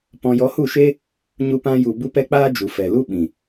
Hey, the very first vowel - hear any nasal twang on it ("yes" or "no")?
yes